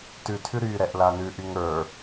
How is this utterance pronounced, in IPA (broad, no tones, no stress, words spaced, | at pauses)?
tʉ tʰʉɾy ɾɛʔlanʉ ʔyŋə˞